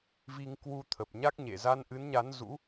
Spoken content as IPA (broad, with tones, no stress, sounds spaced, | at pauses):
v i˧ ŋ k w u˧ t̪ʰ ə˨˩ p̚ ɲ a˦˥ k̚ ɲ ḛ˧˨ z a˧ n ʔ ɨ˨˦ n ɲ a˨˦ n z ṵ˧˥